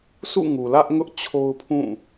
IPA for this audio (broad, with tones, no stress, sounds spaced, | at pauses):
sʰ ṵ˦˨ ŋ u˨ l ä˦ ʔ ŋ ʊ˦ ʔ t͡ɕʰ o˦ ʊ̯ pʰ ũ˦˨